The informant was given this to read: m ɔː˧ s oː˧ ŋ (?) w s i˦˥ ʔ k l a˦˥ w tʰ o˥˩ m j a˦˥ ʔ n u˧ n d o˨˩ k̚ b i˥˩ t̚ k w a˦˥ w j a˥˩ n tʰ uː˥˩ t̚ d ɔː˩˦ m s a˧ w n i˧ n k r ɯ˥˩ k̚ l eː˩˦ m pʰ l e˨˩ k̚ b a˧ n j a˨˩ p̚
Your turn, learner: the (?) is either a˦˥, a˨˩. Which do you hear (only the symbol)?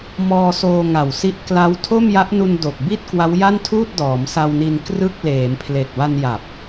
a˨˩